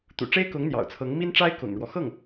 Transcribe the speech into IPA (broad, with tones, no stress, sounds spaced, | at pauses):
t̪ ṵ˨˩ ʈ͡ʂ e˥ ɪ̯ k ʊ˧˥ ŋ n̪ j ɑ̰˨˩ ʊ̯ t͡sʰ ɤ˧˥ ŋ m i˥ n ʈ͡ʂ a˥ ɪ̯ k ʊ̰˨˩ ŋ ɻ w ɔ˦ x ɤ˥˩ ŋ